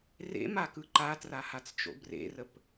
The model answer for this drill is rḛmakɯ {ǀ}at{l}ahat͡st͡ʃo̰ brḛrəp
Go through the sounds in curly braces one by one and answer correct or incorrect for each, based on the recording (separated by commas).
incorrect, incorrect